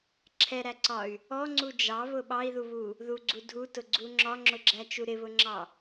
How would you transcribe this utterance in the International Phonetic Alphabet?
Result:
ǁʰ ɛ ɾ æ ǀ ɒ y̯ | ɔ ŋ͡ǀ u d͡ʒ ɑ β ʊ ɓ ɑ i̯ ð u β u | ð u ɡ͡ǀ u dʱ u t ʊ ɡ͡ǀ u ŋ͡ǁ ɒ ŋ͡ǁ ʊ ɡ͡ǁ æ t͡ʃ u ɾ ɪ β ʊ ŋ͡ǁ ɑ

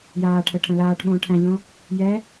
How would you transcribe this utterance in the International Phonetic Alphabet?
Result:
j aː ʈʰ ə ʈʰ ə̃ l aː ʈ ɓ õː ʈʰ æ̃ ʎ õ | j ɛ

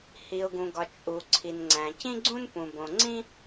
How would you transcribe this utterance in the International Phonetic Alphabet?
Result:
h i˩ ʊ̯ ɡ ũ˩ ɡ ɒ˩ t͡ʃʼ u˩ ǀʰ i˩ n ŋ͡ǀ æ̃˩ c ĩ˥ ɡ͡ǀ ũ˥ n p ũ˩ b õ˩ ŋ͡ǀ ĩ˥

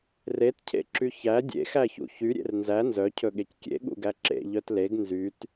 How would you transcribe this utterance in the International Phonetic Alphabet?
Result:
r e t cʰ ḛ ǁ y ç æ dʲ ḛ x æ ç ṵ ç y ɾʲ ḛ r n z æ n z œ cʰ ɵ ɠ e c kʲ ḛ ɠ ṵ ɡ æ ǁ ḛ ʎ œ t l e ɡ n z y t

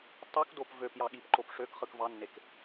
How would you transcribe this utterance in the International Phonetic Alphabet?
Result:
tˤ u k d o p v ø p j ɑ ɠ i p ǃ o p ʂ ø k χ ɯ k v ɑ nː e k

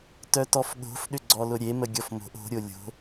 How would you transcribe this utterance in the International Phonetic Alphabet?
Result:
t œ t ɔ f ɠ o̤ f ɗ ʏ ɡ͡ǀ ɔ l ʊ ɾʲ e m ə ɡʲ ɔ f m o̤ ʔ o̤ ɾʲ o lʲ o̤

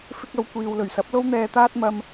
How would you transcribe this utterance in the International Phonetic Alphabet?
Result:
f ɪ˧ k̚ ɐ˨ w kʷ iː˨ w l ɵ˨˩ ɥ s ɐ˨˥ p̚ l o˧ w n̪ ɛː˨ t̪ aː˧ t̚ m ɐ˧ m

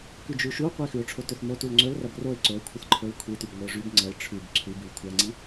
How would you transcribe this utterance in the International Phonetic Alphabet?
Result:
k ʉ d͡ʒ ʉ ʃ u qʷ i x ʉ ʊ̯ ʈ͡ʂʰ o t ɵ θ m o t u l ŋ͡ǀ ɵ l r ɐ b r o ɪ̯ ǀ o ɪ̯ kʷʰ ɐ θ ǃʰ o l kʷʰ i t ʉ b ŋʷ i ʊ̯ ʐ ʉ b ŋ͡ǀ ɐ l ʈ͡ʂʰ ʉ b ǀʰ ʉ b ʉ l kʷʰ a ŋ͡ǀ i

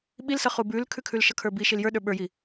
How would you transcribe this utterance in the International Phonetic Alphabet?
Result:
ɓ i l s ʌ χ u b ʉ l kʰ ʉ kʰ ʉ l ʃ ʌ kʰ ə˞ b i ʃ i l j ə˞ ɗ ə˞ ɓ ə˞ j i

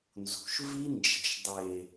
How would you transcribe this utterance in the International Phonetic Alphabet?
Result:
n z ṳ˨ ʃ v i˦ n d͡ʒ e̤˨ ʃ dˤ e˨

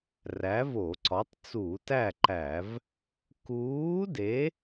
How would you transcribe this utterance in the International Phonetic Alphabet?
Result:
r æ˨˥ v o˧˩˧ ǀ ɒ˨˥ tˤ t͡s uː˧˩˧ t æ˥˨ ǃ æ˧˩˧ v | k uː˨˥ d e˨˥

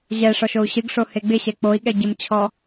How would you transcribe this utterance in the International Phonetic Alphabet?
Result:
ʑ ɛ ʂ ɔ ʃ o u̯ ɕ ɨ ɡ ʂ o h e ɡ͡b ɪ ɕ ɛ k͡p o i̯ ɠ ɛ ɟ ɪ m t͡ɕʰ ɔ

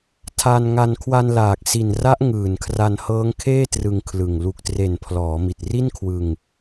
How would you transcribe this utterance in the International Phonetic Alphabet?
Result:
tʰ a˧ n ŋ a˧ n kʰ w a˧ n l aː˨˩ k̚ s i˨˩ n r a˦˥ ʔ ŋ ɯː˨˩ n kʰ r a˧ n h ɤː˦˥ ŋ kʰ eː˥˩ t r ɯ˧ ŋ kʰ l ɯ˨˩ ŋ l u˨˩ k̚ t r e˨˩ n pʰ l ɔː˩˦ m i˨˩ t̚ r i˥˩ n kʰ w ɯ˧ ŋ

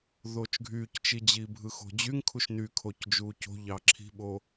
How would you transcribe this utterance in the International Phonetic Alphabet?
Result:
ð oː t͡ʃ ɡʱ yː c t͡ʃ i d͡ʑ iː bʱ ɯ x o̤ d͡ʑ y ŋ kʰ u ʃ n y kʰ o c d͡ʒ uː c o̤ ʎ ɑ ǁʰ i̤ ɓ o

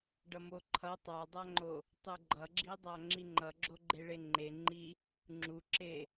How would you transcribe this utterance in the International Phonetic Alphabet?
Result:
ɖ ʌ m o ǃʰ ʌ tˤ a dˤ a ŋ͡ǃ o | tˤ u ɡ͡ǃ ʌ ɡ͡ǁ i dˤ a ŋ͡ǁ i ŋ͡ǃ ʌ ɡ͡ǁ o ɡ͡ǃ e ɭ e ŋ͡ǃ e ŋ͡ǃ i | ŋ͡ǁ u ǁ e

